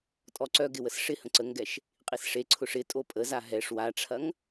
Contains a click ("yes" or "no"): yes